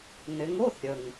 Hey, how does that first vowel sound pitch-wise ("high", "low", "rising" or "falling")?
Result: rising